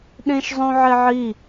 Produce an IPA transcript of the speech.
ɗ ẽ ʃ zˤ õ ʕ e ʕ i

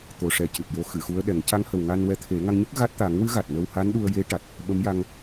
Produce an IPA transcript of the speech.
t̪ o˨˩ ʂ ɛ˨˩ c ɨ˨˩ t̚ j o˧ x ɨ˨˩˨ x u˧˥ ə̯ ɗ ɛ˨˩˦ ŋ c a˧˥ ŋ h ə˨˩ w ŋ a˧ n w ɛ˧˥ t̪ʰ e˨˩˦ ŋ a˧ ŋ ɲ ɨ˦˥ k̚ ɣ a˦˥ t̚ t̪ a˨˩˦ ŋ w ɨ˧˥ ɣ a˨˩ t̚ n ə˧ w h a˧˥ n ɗ u˧ ə̯ j e˧˥ ʈ a˨˩ t̚ | ɓ ə˧˥ m j a˧ ŋ

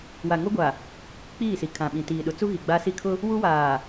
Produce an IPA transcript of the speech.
w a˨ ŋ o˦ ɡʷ a˨ | k͡p iː˦˨ s i˨ kʰ ã˨ ɓ ĩ˨ t iː˨ ɗ ʊ˨˦ t͡s u˦ ɣ i˨ ɡ͡b aː˦ s i˦ kʰ ʊ˦ | w u˦ w aː˨

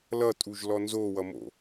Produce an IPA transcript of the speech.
l ʌ tʼ u ʒ l ɔ n z o w ʌ m o̰

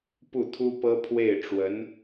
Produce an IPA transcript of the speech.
p u˥˩ t̪ʰ u˥ p ɤ˥ pʰ w e˥˩ ɪ̯ ʈ͡ʂ w ə˧˥ n

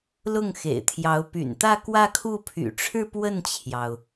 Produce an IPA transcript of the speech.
l ʊ˥˩ ŋ x ḛ˨˩ ɪ̯ t̪ʰ j ɑ˧˥ ʊ̯ p y̰˨˩ n t̪ ä˥˧ k w ä˥˧ kʰ u˥˩ pʰ y̰˨˩ ʈ͡ʂʰ ɻ̩˥˧ p w ə˥˩ n t͡ɕʰ j ɑ˩ ʊ̯

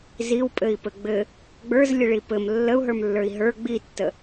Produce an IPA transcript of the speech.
z i w pʼ ɘ i̯ p ɘ ɡ͡b ɘ | ɡ͡b ə˞ z lʲ ɘ ɭ i p ɘ m lː ə u̯ ɦ ə˞ m lː ə˞ i̯ ɦ ə˞ ɡ͡b i tː ə

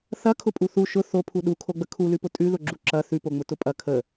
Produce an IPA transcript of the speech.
θ ɐ kʰ ʊ pʼ u θ u ʃ ʊ θ o pʰ u ɗ u kʰ o ɡ͡b ə kʰ u l ʉ p ʊ tʼ ʉ ð ʊ ɡ͡ǁ u ǁ ɐ θ ʉ p o ŋ͡m ʊ t ʊ pʼ ɐ kʰ ə

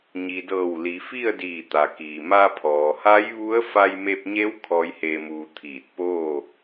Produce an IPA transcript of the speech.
ɲ i˩ d ɤː˧˩ w l i˩˧ f i˥˨ ə̯ d iː˧˩ t̪ a˩ k iː˩ m a˧ pʰ ɔː˩ h a˧˥ j ʋ u˧˥ ə̯ f a˧ j m e˧ p̚ ɲ e˧˥ w kʰ ɔː˧˥ j h eː˧ m uː˧ t̪ʰ iː˧˩ t̚ p oː˥˨

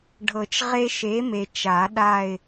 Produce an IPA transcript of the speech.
ɖʱ ɤ˨˩˦ t͡ʃ ʁ e˦ ʃ e˨˥ m e˨ t͡ʃ a˨˩˦ ɗ a˦˨ ɪ̯

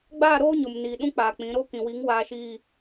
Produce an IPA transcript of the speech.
ɡ͡b aː˦˨ ɾ oː˦ ɲ ʊ˨ m n iː˨ ɗ ũ˦ k͡p aː˨ k͡p ĩ˨˦ ɾ o˦ k ĩ˨ w i˨˦ ŋ w aː˨ ʃ iː˨

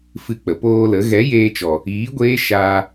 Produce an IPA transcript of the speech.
f ɨ˧ k͡p ə˨ p oː˧ l ə˨˦ ɣ ɛ˨˦ j eː˧ t͡ʃ ɔ˨ | iː˨˦ ɡʷ eː˦ ʃ aː˧

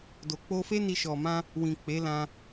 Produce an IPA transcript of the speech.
d o˨ k͡p o˧ f e˦ n i˧ ʃ ɔ˨ m ã˧ | w ĩ˨ k͡p e˨˦ l ã˧

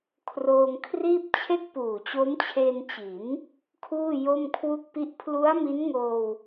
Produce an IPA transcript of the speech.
kʰ r oː˧ ŋ kʰ r iː˥˩ p̚ t͡ɕʰ e˥˩ k̚ p uː˨˩ t͡ɕ o˦˥ m t͡ɕʰ e˧ n t͡ɕ i˩˦ n | kʰ uː˥˩ j o˥˩ m kʰ w u˥˩ k̚ p i˥˩ ʔ pʰ l u˦˥ a̯ m i˦˥ n ŋ oː˧ w

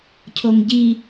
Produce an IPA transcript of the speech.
cʰ o ŋ ɟ i

